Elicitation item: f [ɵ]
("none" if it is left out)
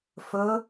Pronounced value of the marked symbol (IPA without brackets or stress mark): ɵ